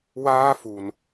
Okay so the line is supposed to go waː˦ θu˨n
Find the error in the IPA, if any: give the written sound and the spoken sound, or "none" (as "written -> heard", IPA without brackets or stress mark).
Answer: θ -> f